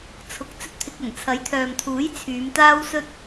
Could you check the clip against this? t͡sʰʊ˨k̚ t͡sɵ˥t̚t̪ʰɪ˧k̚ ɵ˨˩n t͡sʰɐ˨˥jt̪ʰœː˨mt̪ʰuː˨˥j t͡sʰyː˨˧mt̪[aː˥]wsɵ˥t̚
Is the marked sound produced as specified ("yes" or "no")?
yes